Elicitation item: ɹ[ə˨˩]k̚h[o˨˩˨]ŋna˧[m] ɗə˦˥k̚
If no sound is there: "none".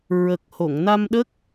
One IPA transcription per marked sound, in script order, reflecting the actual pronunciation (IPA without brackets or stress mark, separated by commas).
ə˨˩, o˨˩˨, m